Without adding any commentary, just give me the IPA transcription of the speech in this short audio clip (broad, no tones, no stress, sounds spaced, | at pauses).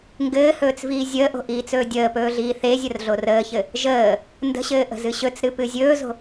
ŋ ɡ ɘː h ɵː t͡s v iː zʲ əː ʔ o̤ ʔ iː t͡s ɵː dʲ əː p ɵː ɮ iː θ e zʲ ə r ɮ o r əː ç ɘ | ʒ əː | n d ə̤ ɕ ɘː ʔ ə̤ z ɨ ɕ ɵ t͡s ɾ ɨ p ɨ zʲ ɵː z o̤